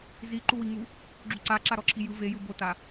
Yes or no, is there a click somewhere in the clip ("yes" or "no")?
yes